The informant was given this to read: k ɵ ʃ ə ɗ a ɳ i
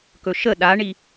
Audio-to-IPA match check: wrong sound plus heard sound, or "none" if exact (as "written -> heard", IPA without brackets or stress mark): none